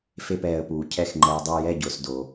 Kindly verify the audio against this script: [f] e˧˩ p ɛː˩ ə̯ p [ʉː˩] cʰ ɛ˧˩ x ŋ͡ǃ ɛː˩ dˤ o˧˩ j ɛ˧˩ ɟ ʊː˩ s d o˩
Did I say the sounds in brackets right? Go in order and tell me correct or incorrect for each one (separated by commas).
correct, incorrect